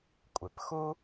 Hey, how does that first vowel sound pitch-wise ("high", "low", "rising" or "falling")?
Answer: low